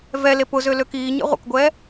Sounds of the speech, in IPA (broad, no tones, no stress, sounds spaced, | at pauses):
v ɛ l e p ʊ z ø l ø k iː ɲ ɛ̰ ʁʷ ə̰ k ɡʷ ɛː